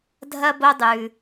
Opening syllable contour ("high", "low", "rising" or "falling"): high